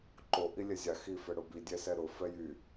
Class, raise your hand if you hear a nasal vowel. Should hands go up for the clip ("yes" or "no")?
no